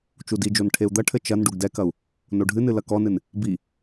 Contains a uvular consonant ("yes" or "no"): no